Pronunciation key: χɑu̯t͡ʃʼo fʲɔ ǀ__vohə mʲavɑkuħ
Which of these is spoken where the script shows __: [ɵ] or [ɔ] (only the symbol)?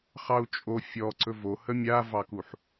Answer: ɵ